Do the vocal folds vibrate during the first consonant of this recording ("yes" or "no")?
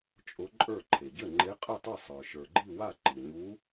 no